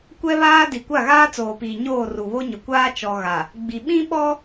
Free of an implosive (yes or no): no